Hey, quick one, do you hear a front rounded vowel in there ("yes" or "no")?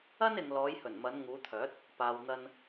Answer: yes